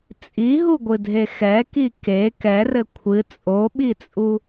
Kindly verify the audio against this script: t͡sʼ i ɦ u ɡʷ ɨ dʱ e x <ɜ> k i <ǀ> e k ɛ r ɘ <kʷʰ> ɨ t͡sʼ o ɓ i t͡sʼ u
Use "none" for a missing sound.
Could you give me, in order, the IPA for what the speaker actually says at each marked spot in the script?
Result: ɛ, k, kʷʰ

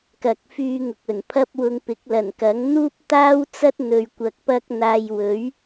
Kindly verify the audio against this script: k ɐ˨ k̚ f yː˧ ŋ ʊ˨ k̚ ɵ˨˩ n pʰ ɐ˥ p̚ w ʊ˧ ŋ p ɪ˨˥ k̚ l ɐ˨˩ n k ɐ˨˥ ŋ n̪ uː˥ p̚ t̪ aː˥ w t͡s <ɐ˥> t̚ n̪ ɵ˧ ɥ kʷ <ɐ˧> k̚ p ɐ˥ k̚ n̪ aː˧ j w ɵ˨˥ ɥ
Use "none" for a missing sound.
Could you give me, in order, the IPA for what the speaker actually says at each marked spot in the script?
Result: ɐ˥, ɐ˧

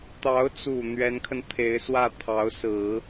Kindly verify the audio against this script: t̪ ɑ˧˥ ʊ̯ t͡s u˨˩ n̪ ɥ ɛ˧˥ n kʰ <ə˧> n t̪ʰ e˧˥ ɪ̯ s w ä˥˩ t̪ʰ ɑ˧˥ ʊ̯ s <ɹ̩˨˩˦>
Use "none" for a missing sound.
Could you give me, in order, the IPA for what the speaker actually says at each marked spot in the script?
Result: ə˧, ɹ̩˨˩˦

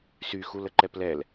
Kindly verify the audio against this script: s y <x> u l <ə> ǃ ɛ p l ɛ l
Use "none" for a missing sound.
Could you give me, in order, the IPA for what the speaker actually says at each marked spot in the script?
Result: x, ə

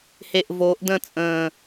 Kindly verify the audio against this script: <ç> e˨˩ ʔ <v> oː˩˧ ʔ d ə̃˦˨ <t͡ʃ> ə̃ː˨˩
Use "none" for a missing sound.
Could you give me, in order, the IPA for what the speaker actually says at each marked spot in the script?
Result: h, v, t͡sʼ

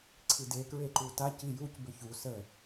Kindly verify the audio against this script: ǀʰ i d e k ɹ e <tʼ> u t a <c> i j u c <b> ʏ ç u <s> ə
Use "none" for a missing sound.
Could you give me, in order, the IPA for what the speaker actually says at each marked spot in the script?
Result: ǃ, c, b, s

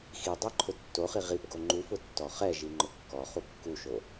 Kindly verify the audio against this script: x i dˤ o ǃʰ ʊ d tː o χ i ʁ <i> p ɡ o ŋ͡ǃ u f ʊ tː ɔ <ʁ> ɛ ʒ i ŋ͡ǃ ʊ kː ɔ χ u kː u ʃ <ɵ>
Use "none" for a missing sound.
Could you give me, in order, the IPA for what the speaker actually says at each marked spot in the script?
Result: i, χ, o

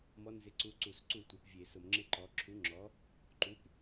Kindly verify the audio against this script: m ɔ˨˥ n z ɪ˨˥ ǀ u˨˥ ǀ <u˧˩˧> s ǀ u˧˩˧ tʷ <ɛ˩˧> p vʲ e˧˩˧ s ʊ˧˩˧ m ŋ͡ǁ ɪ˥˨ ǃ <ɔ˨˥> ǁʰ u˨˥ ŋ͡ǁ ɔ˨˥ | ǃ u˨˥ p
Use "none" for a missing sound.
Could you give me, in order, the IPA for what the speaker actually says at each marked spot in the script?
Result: u˧˩˧, ɛ˩˧, ɔ˨˥

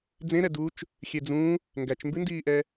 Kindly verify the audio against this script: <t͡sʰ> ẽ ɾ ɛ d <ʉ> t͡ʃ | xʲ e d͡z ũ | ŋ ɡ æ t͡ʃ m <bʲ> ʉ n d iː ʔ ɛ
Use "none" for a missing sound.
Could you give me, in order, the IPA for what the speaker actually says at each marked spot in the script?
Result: d͡z, u, b

